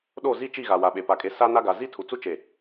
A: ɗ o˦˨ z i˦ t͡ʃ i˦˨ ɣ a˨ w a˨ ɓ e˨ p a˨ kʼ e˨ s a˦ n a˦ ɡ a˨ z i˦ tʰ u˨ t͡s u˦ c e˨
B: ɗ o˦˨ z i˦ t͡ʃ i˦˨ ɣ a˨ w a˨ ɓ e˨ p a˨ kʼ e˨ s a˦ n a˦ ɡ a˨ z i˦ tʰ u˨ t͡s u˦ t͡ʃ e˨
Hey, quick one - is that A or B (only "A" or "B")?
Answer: B